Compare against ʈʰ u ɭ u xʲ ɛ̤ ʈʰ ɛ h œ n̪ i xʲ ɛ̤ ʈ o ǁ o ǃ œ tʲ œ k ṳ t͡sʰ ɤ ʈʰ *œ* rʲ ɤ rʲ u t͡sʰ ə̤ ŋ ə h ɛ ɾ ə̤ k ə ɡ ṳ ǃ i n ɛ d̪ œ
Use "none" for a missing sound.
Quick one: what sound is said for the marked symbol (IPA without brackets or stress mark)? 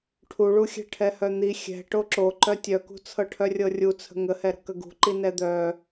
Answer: œ